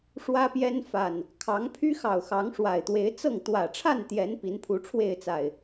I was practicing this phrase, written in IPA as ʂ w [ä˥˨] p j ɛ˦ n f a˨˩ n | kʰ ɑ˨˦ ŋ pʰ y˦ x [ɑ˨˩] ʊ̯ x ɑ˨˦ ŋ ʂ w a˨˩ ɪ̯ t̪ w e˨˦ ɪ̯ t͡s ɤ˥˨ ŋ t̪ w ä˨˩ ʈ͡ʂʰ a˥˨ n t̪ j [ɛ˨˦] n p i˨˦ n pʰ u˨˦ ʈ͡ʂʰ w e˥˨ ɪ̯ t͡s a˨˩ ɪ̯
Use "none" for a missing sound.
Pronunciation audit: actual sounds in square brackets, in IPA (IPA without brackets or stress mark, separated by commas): ä˦, ɑ˨˩, ɛ˨˦